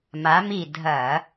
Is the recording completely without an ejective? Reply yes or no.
yes